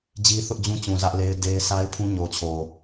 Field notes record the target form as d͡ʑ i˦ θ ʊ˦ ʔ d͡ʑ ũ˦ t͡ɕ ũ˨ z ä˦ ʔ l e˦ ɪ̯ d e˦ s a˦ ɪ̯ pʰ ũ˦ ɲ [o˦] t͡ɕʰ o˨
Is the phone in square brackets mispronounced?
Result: yes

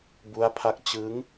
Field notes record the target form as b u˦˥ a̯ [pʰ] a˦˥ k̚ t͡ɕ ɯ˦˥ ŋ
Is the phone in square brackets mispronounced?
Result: no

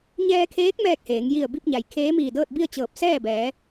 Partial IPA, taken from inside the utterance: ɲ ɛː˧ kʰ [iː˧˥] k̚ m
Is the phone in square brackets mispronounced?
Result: yes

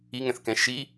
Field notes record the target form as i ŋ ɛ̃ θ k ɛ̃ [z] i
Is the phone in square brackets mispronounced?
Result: yes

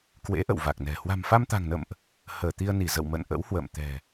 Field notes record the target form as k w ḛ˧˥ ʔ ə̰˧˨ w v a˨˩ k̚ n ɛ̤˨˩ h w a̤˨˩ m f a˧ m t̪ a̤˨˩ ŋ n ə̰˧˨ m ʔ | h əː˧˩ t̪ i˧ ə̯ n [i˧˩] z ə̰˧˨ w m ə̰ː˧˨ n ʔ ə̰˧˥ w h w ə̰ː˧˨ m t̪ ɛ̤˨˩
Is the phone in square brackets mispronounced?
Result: no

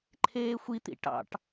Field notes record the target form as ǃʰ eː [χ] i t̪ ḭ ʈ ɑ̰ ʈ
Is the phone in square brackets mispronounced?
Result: yes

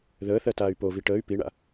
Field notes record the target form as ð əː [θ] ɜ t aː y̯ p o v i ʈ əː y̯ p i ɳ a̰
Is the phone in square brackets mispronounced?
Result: no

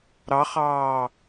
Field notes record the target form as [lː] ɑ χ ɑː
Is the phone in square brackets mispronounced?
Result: yes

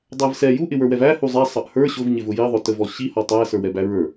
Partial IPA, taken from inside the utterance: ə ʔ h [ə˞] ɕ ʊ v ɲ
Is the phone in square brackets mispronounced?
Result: no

